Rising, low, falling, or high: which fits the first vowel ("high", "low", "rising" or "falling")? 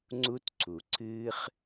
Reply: high